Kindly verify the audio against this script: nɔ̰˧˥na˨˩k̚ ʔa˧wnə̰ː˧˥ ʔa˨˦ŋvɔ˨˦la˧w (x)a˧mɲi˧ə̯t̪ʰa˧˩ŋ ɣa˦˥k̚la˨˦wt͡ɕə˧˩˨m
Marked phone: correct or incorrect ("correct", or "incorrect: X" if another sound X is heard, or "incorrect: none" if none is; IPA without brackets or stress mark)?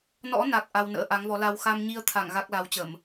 correct